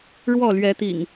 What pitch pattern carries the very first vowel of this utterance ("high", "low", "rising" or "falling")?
falling